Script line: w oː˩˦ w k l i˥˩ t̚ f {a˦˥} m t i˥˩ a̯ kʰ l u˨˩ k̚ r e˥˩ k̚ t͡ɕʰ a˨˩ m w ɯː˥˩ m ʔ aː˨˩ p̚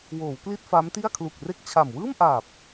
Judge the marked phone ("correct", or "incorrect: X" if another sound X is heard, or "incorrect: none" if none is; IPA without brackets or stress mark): correct